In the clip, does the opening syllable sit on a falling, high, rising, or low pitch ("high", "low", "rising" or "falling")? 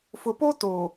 low